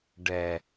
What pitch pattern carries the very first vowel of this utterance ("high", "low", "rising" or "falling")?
low